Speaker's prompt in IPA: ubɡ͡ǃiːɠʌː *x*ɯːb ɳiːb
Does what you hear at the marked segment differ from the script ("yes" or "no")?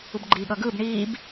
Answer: yes